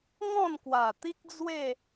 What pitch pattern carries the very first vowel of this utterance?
falling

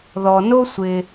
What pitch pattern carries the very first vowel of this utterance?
low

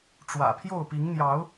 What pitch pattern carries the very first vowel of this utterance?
low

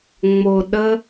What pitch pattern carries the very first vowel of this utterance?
low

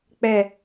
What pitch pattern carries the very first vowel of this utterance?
falling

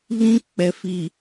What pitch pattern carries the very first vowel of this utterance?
high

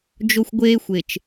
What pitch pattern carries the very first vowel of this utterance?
high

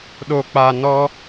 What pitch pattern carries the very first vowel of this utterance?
low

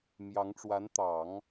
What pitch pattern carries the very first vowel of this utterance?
rising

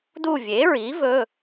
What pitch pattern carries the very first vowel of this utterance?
falling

